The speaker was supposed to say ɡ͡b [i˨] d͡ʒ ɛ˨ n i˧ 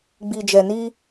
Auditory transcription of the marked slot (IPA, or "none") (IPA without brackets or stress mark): i˨